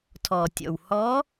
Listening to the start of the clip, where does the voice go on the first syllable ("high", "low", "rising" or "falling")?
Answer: low